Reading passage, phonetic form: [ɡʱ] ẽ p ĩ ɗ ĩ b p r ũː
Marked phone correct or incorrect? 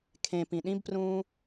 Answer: incorrect